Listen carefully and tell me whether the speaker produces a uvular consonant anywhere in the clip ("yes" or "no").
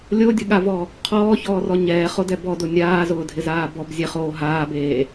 yes